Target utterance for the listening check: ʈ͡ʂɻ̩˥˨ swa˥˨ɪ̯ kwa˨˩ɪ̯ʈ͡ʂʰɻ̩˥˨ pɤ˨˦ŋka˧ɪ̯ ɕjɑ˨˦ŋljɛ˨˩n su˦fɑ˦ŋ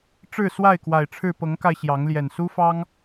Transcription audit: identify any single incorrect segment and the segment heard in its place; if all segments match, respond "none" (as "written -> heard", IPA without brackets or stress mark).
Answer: none